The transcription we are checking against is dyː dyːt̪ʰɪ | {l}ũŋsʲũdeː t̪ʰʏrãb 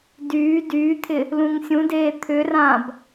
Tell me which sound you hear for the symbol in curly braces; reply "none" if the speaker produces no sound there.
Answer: l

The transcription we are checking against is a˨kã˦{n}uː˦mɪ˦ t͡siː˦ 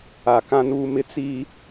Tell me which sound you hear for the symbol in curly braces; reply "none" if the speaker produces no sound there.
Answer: n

